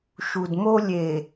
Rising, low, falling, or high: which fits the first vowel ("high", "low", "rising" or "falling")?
low